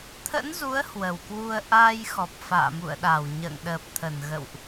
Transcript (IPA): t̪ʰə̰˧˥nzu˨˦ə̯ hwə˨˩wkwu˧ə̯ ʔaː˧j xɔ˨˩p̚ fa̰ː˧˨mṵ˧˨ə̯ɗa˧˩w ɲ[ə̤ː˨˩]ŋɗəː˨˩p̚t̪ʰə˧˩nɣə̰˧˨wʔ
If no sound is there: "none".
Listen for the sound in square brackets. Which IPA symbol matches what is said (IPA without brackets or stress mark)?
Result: ə̰ː˧˨